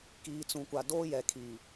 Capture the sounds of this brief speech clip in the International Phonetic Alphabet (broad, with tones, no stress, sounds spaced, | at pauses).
k iː˨ t͡s ũ˨ kʷ a˨ d oː˦ j ɛ˨ kʰ iː˨